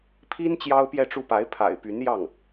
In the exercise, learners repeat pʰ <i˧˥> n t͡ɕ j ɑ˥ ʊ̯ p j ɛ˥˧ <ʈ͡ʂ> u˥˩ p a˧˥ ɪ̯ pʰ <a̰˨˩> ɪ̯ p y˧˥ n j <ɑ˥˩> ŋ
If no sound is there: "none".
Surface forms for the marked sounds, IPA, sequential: i˥, ʈ͡ʂ, a̰˨˩, ɑ˥˩

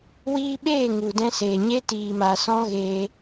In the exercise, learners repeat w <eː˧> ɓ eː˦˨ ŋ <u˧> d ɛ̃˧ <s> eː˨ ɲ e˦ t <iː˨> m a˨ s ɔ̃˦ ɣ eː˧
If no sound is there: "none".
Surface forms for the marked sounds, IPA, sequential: iː˧, u˨, s, iː˨

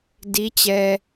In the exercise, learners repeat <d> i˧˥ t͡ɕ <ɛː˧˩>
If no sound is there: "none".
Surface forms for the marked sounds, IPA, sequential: d, ɛː˧

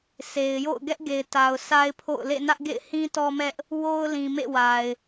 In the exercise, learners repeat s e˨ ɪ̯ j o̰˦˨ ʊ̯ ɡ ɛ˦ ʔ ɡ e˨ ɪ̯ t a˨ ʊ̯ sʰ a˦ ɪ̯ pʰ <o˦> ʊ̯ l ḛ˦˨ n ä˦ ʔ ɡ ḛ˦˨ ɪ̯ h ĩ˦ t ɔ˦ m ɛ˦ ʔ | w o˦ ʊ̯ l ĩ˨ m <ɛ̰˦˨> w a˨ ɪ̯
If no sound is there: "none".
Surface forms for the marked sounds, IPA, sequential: o̰˦˨, ḛ˦˨

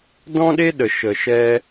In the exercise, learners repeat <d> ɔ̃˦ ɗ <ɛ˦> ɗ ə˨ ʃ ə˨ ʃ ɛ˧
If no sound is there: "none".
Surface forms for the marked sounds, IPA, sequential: d, e˦

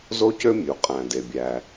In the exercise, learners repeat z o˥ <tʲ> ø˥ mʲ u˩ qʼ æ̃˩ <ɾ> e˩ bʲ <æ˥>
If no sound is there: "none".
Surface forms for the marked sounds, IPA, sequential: c, d, æ˩

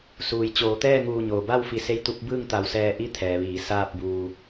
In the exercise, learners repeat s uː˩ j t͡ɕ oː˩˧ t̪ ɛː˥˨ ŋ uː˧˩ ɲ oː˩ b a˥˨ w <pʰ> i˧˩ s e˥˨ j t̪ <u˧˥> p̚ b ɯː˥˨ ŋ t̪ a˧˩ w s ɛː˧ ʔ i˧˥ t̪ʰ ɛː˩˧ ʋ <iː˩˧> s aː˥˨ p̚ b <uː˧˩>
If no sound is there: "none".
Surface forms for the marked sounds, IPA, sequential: f, u˧˥, iː˩˧, uː˧

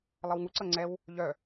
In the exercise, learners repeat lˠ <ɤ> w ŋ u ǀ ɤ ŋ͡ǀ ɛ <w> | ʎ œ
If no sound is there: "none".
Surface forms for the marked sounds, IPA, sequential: ɤ, w

